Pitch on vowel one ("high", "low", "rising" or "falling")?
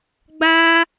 high